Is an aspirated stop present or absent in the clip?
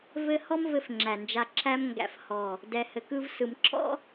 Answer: present